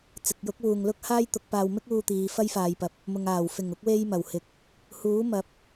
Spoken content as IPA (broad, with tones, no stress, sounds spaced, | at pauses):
t͡s ɪ˨ k̚ j ʊ˨˥ k̚ w uː˨ ŋ l ʊ˥ k̚ h aː˥ j t̪ ʊ˨˥ k̚ p aː˧ w m ɪ˥ k̚ uː˧ t̪ iː˨˧ f ɐ˥ j f aː˧ j p ɐ˧ p̚ | m ʊ˨ ŋ aː˨˩ w f ɪ˨˩ ŋ ʊ˧ k̚ w e˧ j m ɐ˨˩ w h ɪ˨˥ k̚ | h uː˨˥ m ɐ˨˥ p̚